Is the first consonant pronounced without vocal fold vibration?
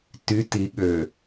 yes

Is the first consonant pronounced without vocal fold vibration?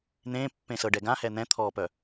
no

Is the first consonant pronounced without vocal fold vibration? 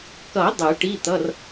yes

